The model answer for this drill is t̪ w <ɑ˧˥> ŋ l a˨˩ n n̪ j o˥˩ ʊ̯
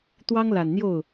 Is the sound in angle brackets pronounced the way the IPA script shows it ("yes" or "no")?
no